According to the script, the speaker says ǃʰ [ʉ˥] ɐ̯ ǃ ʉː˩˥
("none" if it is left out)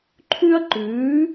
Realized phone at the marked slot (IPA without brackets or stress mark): ʉ˥